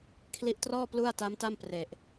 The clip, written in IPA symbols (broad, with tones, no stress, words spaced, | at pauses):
kʰli˦˥ʔtrɔː˥˩ plu˥˩a̯ta˦˥m ta˥˩mpre˨˩ʔ